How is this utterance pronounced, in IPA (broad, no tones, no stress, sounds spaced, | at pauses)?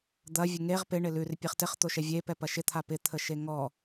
d̪ ɐ vʲ ə ŋ e ʁ p ɪ ɳ ɪ l ʉ r pʲ e χ t ɪ χ t̪ o ʃ ɛ vʲ e p ɛ p ɐ ʃ ɪ t̪ʰ a p ɪ t̪ʰ ə ʃ e ŋ ɔ